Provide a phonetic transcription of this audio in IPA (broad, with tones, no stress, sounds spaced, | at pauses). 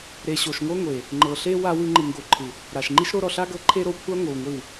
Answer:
ɾ e˨ ɕ o˨ ʃ ŋʷ ɤ˦ ŋʷ e˨ | ŋ͡ǃ ɤ˨ ɬ e˦ w a˧ w ɯ˧ ŋ͡ǃ ɯ˨ ŋ ɡ o˨ ǃʰ ɯ˨ | ɾ a˨ ʃ ŋ͡ǃ i˦ ʃ ɾ o˦ ɾ ɔ˨ ɬ a˦ ɡ ɤ˧ ǃʰ e˦ ɾ o˧ kʷʰ a˦ ŋʷ ɯ˨ w ŋʷ i˦˨ w